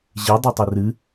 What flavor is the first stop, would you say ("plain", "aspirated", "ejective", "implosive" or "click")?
plain